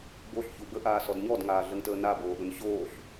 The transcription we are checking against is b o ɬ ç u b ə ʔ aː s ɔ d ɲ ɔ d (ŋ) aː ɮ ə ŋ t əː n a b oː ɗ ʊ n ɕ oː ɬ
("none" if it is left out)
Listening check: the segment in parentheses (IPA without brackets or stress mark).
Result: ŋ